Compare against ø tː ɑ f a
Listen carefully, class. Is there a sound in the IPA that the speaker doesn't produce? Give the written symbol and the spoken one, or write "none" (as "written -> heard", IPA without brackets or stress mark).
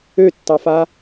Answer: none